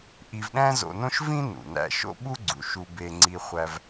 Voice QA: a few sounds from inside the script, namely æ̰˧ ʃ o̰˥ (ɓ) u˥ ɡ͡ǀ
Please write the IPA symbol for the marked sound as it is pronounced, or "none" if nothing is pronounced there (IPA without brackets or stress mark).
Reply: ɓ